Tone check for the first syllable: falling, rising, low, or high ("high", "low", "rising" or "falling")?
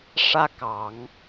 high